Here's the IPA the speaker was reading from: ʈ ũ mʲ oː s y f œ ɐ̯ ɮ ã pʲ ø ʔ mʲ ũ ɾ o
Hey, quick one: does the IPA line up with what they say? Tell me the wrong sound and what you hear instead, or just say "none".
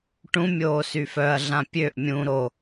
none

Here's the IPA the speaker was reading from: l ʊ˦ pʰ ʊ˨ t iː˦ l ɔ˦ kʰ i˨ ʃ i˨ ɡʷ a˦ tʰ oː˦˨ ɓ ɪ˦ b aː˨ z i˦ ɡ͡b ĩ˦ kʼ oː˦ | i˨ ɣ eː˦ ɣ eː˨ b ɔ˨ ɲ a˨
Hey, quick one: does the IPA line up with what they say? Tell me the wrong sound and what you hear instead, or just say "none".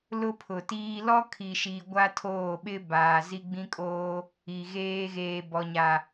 none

